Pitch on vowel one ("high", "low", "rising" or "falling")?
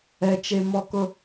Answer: high